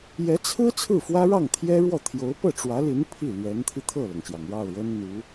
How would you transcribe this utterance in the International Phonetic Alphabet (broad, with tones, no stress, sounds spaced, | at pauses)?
j ɛ˧˥ t͡sʰ ɹ̩˥ t͡sʰ ɹ̩˥˩ f w ä˥ ɻ ɑ˥˩ ŋ t̪ʰ j ɛ˥ ɻ w ɔ˥˩ t̪ʰ j o˧˥ ʊ̯ p ɤ˥˩ ʈ͡ʂ w ä˧˥ l i˧˥ n pʰ i˥˩ l ɥ ɛ˧˥ n t̪ʰ i˧ t̪ʰ ɤ˥˩ l ɤ˩ ŋ ɕ j ɑ˩ ŋ ɻ ɑ˥˩ ʊ̯ ɻ ə˥ n n̪ u˧˥